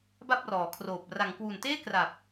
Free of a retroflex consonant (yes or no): yes